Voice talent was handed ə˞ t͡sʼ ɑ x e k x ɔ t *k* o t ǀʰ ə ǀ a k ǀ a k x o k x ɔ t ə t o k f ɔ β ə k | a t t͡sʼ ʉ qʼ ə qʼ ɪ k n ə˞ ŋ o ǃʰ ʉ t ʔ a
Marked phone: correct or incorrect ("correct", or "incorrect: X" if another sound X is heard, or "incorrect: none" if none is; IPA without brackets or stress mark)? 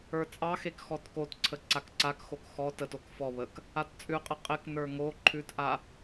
correct